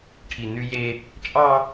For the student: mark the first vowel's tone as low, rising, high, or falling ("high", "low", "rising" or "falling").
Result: low